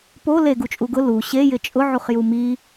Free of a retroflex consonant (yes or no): yes